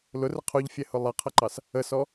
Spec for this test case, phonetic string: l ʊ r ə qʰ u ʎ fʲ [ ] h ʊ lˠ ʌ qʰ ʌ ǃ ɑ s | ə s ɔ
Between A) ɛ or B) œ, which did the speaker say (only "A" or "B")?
A